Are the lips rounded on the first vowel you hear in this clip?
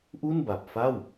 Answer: yes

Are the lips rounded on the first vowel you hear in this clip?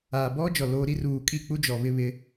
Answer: no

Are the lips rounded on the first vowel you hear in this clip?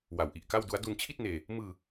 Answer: no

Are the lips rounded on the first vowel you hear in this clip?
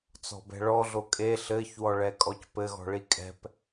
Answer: yes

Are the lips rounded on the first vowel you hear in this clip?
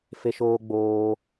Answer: no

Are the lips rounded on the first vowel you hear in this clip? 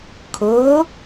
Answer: yes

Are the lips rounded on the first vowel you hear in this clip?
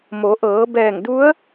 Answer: yes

